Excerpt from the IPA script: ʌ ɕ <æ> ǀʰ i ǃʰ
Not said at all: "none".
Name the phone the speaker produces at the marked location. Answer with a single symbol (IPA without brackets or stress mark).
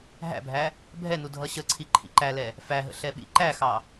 ə